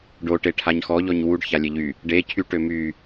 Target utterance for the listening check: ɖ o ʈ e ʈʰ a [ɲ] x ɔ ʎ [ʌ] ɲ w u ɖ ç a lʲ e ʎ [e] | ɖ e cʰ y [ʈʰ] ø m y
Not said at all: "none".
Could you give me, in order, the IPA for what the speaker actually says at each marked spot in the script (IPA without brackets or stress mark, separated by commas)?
ɲ, ɔ, y, ʈ